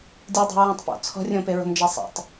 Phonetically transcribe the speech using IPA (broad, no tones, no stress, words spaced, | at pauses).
dʲudˤe̤ ɹũtˤpo̰ t͡sʰɔ̤rʲõpe ɹo̤md͡ʒesˤḛtˤ